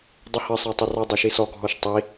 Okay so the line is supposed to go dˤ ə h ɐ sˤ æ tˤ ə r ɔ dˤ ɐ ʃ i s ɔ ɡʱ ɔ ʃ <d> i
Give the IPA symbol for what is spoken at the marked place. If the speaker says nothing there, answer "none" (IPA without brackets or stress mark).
tˤ